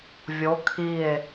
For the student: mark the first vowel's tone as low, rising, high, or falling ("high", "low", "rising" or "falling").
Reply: rising